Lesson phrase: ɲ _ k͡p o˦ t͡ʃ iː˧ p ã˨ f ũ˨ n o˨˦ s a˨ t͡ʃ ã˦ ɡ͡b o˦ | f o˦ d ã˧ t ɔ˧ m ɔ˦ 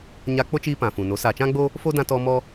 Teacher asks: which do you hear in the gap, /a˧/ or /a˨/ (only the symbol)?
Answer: a˧